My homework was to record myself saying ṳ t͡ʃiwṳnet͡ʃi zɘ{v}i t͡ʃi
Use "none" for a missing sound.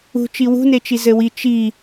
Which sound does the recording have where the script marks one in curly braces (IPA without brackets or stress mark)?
w